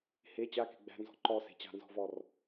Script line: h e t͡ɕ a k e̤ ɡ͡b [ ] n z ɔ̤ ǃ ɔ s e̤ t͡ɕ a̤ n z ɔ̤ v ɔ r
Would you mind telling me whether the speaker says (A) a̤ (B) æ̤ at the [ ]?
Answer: B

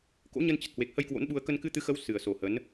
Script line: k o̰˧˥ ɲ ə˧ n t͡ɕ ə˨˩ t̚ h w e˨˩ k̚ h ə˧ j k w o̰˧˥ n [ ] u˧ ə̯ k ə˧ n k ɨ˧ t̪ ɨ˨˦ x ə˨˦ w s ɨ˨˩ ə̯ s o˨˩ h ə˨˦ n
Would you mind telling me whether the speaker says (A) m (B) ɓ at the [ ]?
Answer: B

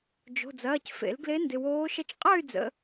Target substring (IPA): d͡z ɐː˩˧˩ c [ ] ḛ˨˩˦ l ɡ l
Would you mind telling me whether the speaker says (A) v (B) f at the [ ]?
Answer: B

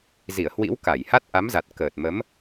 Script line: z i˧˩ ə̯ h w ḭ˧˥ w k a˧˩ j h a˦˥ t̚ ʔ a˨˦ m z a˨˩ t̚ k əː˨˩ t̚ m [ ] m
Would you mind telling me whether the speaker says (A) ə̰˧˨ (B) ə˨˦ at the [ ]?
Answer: B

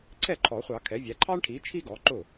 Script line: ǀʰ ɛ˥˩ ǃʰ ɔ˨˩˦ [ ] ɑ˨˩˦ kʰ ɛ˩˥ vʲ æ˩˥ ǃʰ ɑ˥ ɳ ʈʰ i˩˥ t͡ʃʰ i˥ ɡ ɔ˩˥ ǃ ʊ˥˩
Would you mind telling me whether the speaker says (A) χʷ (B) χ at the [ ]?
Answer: A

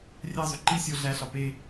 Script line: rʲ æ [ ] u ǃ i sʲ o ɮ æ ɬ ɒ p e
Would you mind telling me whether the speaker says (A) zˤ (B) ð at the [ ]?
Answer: A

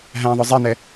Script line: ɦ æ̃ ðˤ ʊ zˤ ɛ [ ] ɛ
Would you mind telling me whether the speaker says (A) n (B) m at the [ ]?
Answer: A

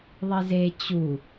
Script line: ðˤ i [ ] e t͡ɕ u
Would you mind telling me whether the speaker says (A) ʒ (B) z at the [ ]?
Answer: B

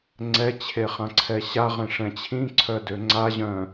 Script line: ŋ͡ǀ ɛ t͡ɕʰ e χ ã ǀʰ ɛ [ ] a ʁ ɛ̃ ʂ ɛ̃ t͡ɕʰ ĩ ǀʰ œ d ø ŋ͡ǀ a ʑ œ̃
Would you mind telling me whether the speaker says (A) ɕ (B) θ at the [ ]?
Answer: A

